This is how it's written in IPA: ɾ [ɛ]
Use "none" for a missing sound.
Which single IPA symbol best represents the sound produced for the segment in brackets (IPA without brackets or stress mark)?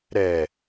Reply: ɛ